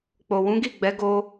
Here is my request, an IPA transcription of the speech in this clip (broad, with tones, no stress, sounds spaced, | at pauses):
k͡p o˨ w ũ˨˦ ɡ i˦˨ ɡ͡b ɛ˨˦ ɡ o˧